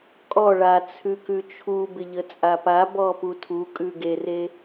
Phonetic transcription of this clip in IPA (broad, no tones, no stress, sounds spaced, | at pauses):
kʼ ɔ ɭ a t͡sʰ ʉ k ʉ t͡ʃʰ u b ɪ ʎ ə t͡sʼ a p a b ɔ p u tʰ u kʼ ʉ ɡ e r e